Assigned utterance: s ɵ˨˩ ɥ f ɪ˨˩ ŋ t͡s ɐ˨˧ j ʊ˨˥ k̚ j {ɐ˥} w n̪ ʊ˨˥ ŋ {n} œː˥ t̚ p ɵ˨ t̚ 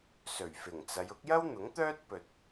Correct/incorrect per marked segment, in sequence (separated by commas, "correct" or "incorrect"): correct, incorrect